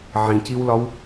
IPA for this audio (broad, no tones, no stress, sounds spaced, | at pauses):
ʕ ĩ c i w l ɒ w